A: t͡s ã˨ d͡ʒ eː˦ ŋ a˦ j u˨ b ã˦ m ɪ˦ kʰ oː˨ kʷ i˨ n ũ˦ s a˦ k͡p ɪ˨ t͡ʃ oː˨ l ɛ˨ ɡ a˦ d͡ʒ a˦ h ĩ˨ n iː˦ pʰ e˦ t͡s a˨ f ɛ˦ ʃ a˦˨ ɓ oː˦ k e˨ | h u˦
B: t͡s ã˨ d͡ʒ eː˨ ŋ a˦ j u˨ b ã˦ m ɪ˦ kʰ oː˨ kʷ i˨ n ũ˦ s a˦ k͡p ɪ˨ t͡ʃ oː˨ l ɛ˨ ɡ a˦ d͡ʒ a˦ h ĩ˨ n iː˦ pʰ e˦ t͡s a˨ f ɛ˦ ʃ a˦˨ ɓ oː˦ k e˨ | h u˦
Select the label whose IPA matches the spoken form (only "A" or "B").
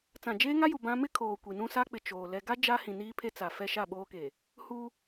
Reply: A